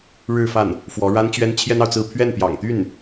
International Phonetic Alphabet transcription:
ɻɻ̩˥˧fa˥˩n | fwɔ˧˥ɻa˥nt͡ɕɥɛ˥n t͡ɕʰjɛ˥nɑ˨ʊ̯t͡sɹ̩˥˧ pʰɥɛ˥˩npjɑ̰˨˩ŋt̪y˥˩n

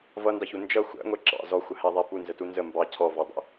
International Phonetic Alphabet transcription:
vʌndɑçu nd͡ʒʌ xʷæ̰ŋʷɛ ǁɑ̰ zɔxʷəhæðˤæ punzətu nzə mbɑ cʰɔvɔdˤɛ̰

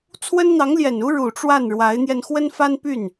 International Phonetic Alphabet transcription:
t͡sʰwə˥nn̪ɑ˧˥ŋljɛ˨˩nu˥ ɻu˨˩ʈ͡ʂwa˥˩n ɻwa˧˥ɪ̯n̪jɛ˧n xwə˥nfa˥npy˥˩n

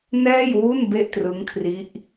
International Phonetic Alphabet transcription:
nɛː˥˩jwu˥˩n be˥˩ʔtrɯ˦˥ŋkʰri˦˥ʔ

